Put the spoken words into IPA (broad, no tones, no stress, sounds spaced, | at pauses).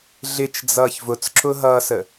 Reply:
ɮ ɪ t͡ʃ d͡z ʌː ç v ʊ t͡s ǁ ʊ ɦ ʌː s ə